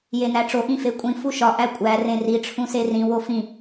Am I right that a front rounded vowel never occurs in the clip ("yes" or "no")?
yes